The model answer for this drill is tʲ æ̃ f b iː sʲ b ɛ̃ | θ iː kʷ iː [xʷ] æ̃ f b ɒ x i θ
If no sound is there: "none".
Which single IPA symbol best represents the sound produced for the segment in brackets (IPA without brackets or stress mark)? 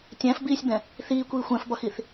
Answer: xʷ